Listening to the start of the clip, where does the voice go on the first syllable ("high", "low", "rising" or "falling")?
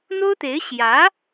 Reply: high